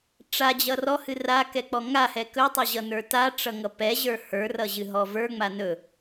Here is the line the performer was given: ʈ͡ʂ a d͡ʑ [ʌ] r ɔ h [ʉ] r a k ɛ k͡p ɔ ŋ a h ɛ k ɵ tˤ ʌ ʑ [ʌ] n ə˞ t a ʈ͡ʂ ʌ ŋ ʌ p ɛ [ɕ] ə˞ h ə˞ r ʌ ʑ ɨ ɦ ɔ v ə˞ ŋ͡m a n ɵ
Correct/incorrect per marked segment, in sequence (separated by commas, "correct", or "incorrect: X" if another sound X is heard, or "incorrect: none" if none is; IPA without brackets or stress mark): correct, incorrect: ɨ, correct, incorrect: ʑ